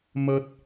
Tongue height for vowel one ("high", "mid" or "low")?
low